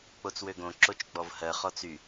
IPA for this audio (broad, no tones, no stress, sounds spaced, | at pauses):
k͡p o t͡s w ø ɡ õ ǁ o t͡ʃ ɡ͡b ɔ v h ɜ χ ɔ t͡s y